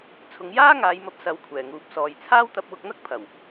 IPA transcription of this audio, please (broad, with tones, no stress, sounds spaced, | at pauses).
t͡sʰ ʊ˨˧ ŋ j aː˥ ŋ aː˨˧ j m ɐ˧ p̚ s ɐ˨˧ w kʷʰ ɛː˨˩ ŋ uː˨ p̚ s ɔː˨ j t͡sʰ aː˥ w t̪ ɐ˧ p̚ w ʊ˧ k̚ n̪ ɐ˥ k̚ pʰ ɐ˨˩ w